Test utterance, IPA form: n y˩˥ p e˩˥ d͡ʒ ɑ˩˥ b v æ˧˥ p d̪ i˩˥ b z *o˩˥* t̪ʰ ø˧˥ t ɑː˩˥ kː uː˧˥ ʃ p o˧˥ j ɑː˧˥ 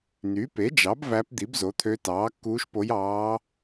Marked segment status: correct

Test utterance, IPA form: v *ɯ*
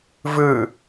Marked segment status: correct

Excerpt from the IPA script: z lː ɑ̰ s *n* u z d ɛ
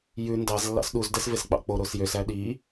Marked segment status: incorrect: ɗ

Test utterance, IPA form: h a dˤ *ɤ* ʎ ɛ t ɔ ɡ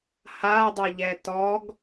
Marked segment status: correct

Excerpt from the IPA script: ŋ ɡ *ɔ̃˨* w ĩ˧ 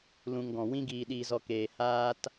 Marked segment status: correct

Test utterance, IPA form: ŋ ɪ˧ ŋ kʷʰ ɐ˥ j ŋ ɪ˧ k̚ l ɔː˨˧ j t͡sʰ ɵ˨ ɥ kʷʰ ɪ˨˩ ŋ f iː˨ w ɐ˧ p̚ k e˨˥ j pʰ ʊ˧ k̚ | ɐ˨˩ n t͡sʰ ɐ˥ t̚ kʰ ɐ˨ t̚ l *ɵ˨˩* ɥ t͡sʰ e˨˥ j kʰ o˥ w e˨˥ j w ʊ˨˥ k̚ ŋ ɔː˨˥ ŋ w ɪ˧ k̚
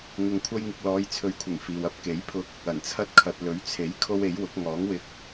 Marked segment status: incorrect: ɵ˨˥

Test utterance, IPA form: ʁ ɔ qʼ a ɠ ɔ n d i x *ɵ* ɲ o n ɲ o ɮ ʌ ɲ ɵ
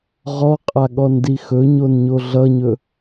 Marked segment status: correct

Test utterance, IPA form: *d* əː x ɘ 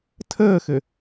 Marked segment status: incorrect: tʰ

